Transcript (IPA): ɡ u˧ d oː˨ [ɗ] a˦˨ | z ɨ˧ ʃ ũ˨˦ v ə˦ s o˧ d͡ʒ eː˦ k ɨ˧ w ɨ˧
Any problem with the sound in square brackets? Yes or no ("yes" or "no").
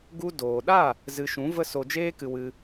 no